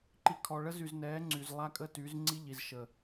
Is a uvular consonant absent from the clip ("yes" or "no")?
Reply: yes